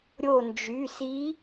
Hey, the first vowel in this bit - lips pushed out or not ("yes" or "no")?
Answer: yes